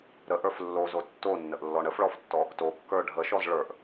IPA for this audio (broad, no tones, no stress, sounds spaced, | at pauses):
ɾ ə ʔ ə˞ f lː o z o tː o nː ə ʔ lː ɔ ɳ ə f ɭ ɔ f tː ɔ | t o kː ə˞ ɖʱ ə ʃ ɔ z ɭ ə˞ ʔ